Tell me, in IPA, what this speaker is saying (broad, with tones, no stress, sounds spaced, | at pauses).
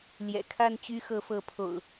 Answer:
l j ɛ̰˨˩ kʰ a˥˨ n t͡ɕ y˦ x ɤ˨˦ f ɤ˨˦ pʰ o̰˨˩ ʊ̯